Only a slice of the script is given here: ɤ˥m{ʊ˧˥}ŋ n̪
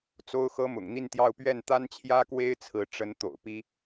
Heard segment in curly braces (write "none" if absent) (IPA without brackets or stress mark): ʊ̰˨˩